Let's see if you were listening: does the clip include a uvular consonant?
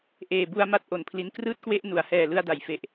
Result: no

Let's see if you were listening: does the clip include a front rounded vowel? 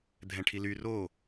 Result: yes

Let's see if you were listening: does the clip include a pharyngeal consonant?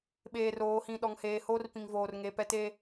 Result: no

